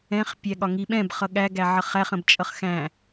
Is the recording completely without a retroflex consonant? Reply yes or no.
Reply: yes